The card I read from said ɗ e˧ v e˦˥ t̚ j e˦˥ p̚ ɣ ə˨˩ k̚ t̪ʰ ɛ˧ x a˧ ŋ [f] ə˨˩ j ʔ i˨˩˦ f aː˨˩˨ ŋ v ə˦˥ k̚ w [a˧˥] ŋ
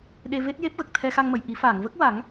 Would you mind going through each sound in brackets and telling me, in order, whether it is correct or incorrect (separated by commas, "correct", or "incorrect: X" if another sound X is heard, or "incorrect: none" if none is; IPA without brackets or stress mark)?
incorrect: m, incorrect: a˨˩˦